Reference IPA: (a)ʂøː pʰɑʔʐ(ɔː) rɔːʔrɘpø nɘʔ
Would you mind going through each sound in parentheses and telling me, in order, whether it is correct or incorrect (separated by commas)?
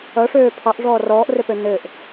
incorrect, correct